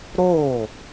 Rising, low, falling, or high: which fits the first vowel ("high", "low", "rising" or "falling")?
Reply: falling